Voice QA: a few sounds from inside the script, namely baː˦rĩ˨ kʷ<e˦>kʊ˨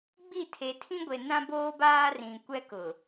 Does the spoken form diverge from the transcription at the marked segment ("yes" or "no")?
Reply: yes